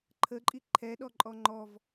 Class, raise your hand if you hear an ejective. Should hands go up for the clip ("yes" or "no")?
yes